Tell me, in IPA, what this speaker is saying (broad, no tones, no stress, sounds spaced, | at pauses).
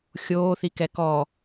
xʲ oː θ i k ɛ k ɔ